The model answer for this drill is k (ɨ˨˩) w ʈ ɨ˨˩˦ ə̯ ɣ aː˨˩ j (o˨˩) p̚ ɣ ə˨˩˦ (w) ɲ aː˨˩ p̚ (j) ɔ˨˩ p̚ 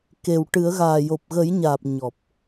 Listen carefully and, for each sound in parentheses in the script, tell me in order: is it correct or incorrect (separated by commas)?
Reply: incorrect, correct, incorrect, incorrect